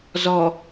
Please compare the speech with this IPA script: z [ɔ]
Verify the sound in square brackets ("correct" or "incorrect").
correct